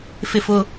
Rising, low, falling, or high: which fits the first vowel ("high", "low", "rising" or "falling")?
falling